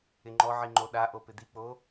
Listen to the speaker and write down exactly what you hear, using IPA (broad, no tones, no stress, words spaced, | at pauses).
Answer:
ɪŋ͡ǃɔʕi ŋ͡ǃoɗaʔo pɪd̪ik͡po